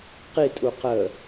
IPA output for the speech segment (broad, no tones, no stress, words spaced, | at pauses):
qitʼu qə